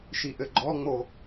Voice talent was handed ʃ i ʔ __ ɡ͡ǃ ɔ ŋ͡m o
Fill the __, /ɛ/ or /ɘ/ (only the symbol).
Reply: ɘ